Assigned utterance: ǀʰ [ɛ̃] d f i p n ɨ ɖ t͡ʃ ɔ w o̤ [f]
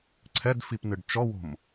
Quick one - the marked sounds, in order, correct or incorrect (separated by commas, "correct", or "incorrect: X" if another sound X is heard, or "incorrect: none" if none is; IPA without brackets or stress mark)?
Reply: incorrect: ɛ, incorrect: m